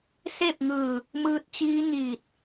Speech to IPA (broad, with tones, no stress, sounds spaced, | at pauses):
s e˥˨ p̚ ŋ ɯː˧˩ | m ɯː˧ t̚ t͡ɕ iː˧˥ ɲ iː˧˩ t̚